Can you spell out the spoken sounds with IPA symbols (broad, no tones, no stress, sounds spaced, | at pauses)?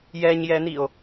j ɛ ɲ j ɛ n i o̯